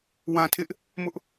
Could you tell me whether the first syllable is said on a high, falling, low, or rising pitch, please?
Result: low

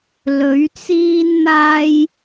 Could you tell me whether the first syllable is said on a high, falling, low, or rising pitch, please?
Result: rising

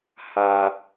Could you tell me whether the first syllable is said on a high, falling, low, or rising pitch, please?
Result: high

